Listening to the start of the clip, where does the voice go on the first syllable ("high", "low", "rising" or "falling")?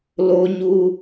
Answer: high